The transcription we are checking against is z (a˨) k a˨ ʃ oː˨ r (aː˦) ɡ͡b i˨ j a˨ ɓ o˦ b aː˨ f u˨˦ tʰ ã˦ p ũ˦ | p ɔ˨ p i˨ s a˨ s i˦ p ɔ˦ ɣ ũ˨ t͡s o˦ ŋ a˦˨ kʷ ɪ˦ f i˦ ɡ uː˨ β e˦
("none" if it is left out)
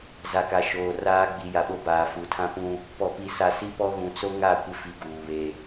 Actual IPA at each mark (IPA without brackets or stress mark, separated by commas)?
a˨, aː˦